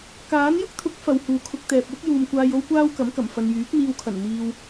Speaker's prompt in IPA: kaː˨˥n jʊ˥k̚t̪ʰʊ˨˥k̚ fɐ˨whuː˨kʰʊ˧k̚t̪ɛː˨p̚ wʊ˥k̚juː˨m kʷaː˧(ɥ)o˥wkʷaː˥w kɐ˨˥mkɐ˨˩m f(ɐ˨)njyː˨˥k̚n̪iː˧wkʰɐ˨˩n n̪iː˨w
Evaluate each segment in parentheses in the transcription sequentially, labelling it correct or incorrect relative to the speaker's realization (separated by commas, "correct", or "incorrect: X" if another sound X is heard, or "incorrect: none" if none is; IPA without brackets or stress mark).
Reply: incorrect: j, correct